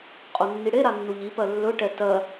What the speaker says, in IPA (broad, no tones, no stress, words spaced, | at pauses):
qʼonːiɽeɾa nːuʎipɜ lːɵʈɛ tɜ